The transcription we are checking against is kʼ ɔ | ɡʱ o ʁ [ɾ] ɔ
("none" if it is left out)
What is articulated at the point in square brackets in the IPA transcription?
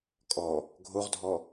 dʱ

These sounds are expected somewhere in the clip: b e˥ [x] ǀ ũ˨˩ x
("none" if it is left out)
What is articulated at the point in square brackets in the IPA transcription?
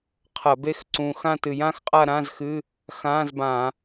x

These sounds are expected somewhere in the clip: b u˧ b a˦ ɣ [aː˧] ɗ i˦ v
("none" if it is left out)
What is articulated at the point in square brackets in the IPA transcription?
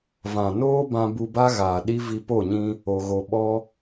aː˨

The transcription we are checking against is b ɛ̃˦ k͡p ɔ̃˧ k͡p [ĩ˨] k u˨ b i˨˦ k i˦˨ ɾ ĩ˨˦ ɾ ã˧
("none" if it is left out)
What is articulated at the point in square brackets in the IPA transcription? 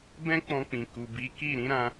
ĩ˨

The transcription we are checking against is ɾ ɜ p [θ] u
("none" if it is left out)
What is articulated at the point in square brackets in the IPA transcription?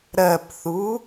θ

